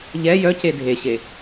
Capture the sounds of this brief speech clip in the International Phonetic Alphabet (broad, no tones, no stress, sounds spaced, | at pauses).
ʎ ɛ j œ c e dʱ e ɕ e